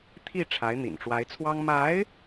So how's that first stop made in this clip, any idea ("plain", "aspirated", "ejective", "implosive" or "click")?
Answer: aspirated